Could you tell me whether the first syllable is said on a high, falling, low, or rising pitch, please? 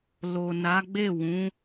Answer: low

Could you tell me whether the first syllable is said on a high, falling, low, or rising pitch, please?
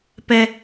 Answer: high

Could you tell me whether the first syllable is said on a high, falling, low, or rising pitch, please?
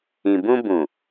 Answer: low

